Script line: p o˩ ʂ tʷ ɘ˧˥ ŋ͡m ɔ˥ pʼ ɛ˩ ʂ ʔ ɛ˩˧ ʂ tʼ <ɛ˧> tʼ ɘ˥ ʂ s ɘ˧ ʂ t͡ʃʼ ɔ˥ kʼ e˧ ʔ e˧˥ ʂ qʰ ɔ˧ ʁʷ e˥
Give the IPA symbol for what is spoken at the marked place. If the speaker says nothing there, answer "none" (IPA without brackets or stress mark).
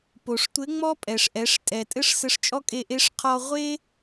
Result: ɛ˩